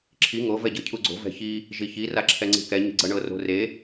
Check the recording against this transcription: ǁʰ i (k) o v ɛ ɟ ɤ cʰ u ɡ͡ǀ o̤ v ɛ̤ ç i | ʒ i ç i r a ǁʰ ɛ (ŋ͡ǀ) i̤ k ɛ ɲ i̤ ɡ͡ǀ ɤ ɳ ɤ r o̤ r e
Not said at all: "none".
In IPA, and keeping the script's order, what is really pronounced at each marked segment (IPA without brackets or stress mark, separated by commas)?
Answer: ŋ, ŋ͡ǀ